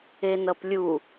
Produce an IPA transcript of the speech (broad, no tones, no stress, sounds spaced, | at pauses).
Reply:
e n ʌ p lʲ u